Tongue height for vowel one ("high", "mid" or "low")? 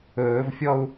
mid